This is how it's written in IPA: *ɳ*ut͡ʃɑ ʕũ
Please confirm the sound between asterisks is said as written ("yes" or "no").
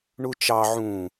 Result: yes